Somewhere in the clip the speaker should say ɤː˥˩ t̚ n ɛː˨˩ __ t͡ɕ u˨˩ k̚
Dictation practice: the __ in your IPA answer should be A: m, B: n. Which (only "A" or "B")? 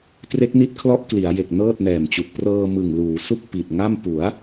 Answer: A